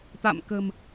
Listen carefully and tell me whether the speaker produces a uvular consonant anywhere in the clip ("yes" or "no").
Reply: no